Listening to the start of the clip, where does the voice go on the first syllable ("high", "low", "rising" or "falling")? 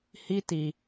high